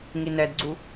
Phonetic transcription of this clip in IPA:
ŋ i n ɛ d ɡ͡ǀ u

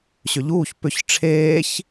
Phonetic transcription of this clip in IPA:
ɕ ʏ ʎ uː ç p ʏ ç ʈ͡ʂʰ eː ç

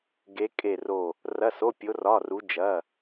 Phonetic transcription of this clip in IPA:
ɡ e˧˥ kʼ e˦˨ r o˦˨ | r ɐ˧˥˧ s o˧˥˧ pʲ o˧˥ r ɒ˧˥˧ r u˧˥ d͡ʒ ɐ˧˥˧

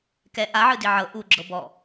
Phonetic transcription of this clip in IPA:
k ɛ ʔ a ʕ ɯ d i ʕ ɤ ʔ u ɡ͡ǁ ɤ b ɔ

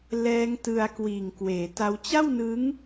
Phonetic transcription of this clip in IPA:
l ɛː˦˥ ŋ t ɯ˧ a̯ k w iː˨˩ ŋ k w eː˩˦ t a˦˥ w t͡ɕ a˥˩ w n ɯ˦˥ ŋ

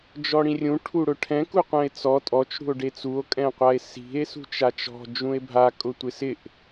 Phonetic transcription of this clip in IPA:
d͡ʒ ɔ ɽ ĩ rʲ ũ ʈʰ u ɽ ʊ ʈʰ ɛ̃ k u qʷ ɛ̃ e̯ t͡s ɔ tʼ ɔ t͡ʃ ɽ ṳ o̯ ɖ e t͡s u o̯ kʼ ɛ̃ qʷ a e̯ s i̤ e̯ s ṳ t͡ʃ a t͡ʃ ɔ̤ d͡ʒ ũ e̯ bʱ a kʼ ʊ tʷ ɪ s ɪ ʔ

